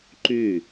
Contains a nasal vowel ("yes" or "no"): no